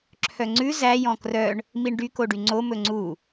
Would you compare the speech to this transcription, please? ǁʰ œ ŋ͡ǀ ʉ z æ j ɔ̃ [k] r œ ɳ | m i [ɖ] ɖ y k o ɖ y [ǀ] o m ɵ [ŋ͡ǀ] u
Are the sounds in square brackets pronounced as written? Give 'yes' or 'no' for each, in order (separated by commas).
yes, no, no, yes